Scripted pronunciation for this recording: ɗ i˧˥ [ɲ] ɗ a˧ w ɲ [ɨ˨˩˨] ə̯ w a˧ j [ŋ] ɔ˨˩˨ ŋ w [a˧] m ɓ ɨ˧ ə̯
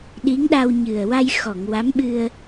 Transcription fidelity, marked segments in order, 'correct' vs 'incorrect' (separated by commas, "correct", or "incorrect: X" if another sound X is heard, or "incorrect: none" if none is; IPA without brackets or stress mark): incorrect: ŋ, incorrect: ɨ˨˩, incorrect: x, incorrect: a˧˥